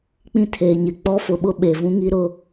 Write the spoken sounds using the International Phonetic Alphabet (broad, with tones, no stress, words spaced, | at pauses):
k͡pĩ˦tʰeː˨ɲɪ˨ k͡pɔ˦fʊ˨ɓʊ˦ ɓe˨vũ˦ŋi˦ ɾʊ˦˨